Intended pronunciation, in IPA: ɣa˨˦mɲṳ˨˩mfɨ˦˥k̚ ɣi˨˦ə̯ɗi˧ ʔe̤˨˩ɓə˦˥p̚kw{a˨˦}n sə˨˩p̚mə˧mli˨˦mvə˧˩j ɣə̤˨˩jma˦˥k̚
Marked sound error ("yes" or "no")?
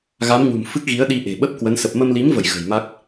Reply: yes